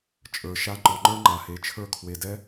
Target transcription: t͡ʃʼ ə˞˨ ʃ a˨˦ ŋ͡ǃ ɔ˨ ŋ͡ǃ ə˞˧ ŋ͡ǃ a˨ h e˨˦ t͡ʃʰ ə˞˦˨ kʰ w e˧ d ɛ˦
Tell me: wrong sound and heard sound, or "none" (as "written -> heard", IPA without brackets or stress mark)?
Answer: none